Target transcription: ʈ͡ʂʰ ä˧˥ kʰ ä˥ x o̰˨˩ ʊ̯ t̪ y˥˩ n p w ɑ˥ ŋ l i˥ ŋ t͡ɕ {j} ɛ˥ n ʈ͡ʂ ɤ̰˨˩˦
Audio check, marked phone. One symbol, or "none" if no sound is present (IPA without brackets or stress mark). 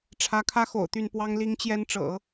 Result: j